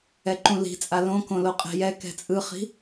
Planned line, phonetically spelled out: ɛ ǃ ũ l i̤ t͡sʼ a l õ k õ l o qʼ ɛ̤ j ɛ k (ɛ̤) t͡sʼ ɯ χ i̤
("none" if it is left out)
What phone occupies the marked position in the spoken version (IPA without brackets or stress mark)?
ɛ̤